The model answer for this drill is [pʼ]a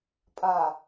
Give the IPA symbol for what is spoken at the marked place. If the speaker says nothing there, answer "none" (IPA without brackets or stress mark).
pʼ